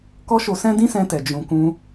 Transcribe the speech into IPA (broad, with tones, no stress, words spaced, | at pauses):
kɔ˦ʃo˧sɛ̃˦ dĩ˦sɛ̃˧tɛ˨ d͡ʒũ˧kũ˦